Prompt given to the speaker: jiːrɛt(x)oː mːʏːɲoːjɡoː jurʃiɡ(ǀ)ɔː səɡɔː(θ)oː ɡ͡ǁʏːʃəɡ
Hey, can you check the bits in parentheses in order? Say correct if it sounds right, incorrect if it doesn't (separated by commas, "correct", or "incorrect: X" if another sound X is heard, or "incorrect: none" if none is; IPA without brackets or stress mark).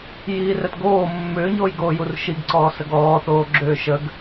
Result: incorrect: ɡ, correct, correct